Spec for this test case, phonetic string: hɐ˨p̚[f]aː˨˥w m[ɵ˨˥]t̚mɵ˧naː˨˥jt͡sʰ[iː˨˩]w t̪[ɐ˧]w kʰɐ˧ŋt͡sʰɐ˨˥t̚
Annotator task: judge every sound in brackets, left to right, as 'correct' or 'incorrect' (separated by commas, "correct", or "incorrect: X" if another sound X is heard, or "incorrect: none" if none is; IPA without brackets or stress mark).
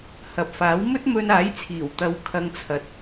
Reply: correct, incorrect: ɵ˥, correct, correct